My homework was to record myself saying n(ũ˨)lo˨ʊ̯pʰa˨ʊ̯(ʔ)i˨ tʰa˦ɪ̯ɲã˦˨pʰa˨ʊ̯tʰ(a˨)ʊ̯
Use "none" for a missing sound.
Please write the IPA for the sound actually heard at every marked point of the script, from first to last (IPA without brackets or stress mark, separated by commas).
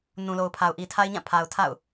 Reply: ũ˨, ʔ, a̰˦˨